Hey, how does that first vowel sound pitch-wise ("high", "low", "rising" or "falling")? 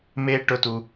high